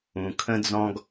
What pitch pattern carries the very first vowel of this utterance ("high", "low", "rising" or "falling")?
low